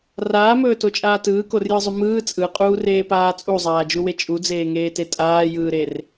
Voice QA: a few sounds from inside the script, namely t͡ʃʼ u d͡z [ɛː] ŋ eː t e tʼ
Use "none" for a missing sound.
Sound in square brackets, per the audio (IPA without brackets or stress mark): eː